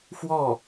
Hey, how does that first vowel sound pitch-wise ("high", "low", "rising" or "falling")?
falling